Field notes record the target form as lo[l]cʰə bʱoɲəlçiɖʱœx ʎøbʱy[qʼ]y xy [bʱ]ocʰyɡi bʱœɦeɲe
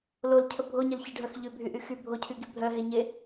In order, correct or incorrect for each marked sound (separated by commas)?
correct, incorrect, correct